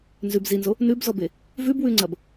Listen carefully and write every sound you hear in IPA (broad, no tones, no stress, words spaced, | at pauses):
nzʉb zinzo | nʉbzɔbe | vʉbwʉŋ͡ǀɐb